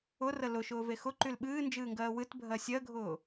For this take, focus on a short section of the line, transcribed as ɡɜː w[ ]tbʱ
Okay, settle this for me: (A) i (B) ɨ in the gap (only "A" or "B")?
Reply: B